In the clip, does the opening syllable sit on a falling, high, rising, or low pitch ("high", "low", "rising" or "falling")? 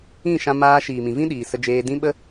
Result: falling